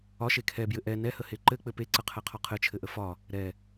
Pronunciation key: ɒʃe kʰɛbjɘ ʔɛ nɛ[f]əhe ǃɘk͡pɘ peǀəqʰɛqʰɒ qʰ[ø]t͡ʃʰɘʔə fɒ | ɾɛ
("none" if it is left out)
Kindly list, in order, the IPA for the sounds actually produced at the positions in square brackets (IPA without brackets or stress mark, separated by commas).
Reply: h, ɘ